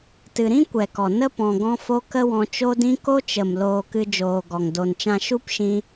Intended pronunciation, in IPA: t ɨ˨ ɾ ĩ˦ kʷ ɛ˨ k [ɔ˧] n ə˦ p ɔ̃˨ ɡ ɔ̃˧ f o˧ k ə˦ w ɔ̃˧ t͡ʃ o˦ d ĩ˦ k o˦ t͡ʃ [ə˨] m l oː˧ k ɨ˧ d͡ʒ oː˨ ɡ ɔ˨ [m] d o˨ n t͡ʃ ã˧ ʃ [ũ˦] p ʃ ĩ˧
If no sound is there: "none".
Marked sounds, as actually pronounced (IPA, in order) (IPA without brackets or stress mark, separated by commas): ɔ˨, ə˨, ŋ, u˦